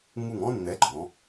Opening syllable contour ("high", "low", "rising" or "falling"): falling